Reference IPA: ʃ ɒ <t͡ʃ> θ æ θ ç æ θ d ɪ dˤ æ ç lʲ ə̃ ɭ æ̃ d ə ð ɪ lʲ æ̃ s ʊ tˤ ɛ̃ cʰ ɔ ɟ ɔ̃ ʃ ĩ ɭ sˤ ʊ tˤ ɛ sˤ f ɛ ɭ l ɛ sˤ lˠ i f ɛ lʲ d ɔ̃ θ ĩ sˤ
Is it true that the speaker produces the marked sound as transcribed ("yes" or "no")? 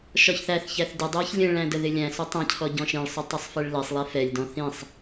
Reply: no